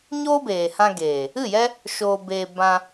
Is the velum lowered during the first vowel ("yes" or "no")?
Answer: no